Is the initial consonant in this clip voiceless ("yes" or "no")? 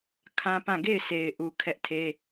yes